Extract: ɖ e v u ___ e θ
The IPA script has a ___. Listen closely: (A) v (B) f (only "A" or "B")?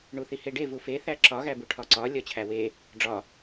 B